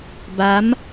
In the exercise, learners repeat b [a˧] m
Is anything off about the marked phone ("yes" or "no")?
yes